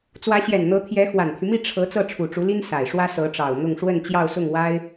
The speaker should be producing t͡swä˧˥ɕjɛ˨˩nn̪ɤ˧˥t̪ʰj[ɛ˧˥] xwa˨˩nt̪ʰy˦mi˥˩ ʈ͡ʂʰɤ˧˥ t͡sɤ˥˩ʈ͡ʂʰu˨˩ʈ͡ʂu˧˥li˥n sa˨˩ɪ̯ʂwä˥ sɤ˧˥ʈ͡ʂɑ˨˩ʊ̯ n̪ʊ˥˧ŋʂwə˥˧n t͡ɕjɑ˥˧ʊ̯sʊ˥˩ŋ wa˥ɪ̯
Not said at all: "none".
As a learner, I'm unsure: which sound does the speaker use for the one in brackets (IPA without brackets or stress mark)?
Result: ɛ˧˥